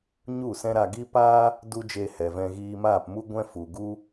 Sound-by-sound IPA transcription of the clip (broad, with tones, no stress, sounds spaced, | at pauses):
ɲ u˦˨ s ɛ̃˦ ɾ a˧ ɡ i˦ p aː˦ | d u˦ d͡ʒ e˧ h ɛ˨ v ɛ̃˧ ɣ iː˧ m aː˦˨ p m u˦ ɡʷ ɛ̃˦ f u˨ ɡ u˦